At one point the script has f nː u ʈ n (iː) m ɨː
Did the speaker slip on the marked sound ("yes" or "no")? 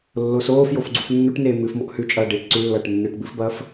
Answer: yes